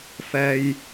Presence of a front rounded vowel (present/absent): absent